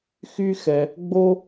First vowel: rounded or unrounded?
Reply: rounded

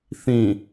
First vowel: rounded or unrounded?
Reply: unrounded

